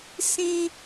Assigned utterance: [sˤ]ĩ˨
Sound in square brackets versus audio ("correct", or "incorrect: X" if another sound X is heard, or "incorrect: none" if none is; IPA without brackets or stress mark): incorrect: s